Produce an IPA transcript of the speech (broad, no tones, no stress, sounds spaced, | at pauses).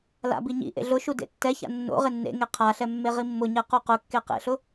l a̰ b i ɲ ḭ ʔ ḛ ɮ ʊ ʃ u d ḛ tː ɛ ç a̰ nː o̰ ʁ ɪ nː ḛ ŋ e qʰ a ɬ ɛ mː e ʁ i mː ʊ ɲ ɛ q u q ʊ kː e q ḛ ɬ ʊ